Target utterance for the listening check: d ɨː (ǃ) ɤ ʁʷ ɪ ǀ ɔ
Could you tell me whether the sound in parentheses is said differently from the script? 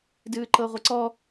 no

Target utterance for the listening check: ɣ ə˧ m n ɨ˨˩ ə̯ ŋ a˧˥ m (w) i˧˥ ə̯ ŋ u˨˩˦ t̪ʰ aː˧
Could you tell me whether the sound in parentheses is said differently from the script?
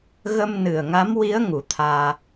no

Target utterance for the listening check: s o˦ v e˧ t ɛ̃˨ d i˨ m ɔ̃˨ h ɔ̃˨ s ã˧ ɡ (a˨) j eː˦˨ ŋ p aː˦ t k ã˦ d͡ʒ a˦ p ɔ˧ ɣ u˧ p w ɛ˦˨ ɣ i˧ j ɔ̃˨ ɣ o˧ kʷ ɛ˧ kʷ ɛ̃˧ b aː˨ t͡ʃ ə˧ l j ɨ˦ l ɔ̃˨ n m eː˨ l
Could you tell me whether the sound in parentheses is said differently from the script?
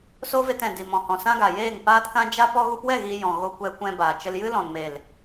no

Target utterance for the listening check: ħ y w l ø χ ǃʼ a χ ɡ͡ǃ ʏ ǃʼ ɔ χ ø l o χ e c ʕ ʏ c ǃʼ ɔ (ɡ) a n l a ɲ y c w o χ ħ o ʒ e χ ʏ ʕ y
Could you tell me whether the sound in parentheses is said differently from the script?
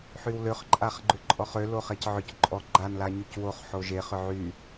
yes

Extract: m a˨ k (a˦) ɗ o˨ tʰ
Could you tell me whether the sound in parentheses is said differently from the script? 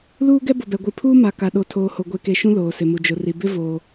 yes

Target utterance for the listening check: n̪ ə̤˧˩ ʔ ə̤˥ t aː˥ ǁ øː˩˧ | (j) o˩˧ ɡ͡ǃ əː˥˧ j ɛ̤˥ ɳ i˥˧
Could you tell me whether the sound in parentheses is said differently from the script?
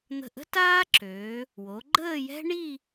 yes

